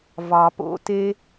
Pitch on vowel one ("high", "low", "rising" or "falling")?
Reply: low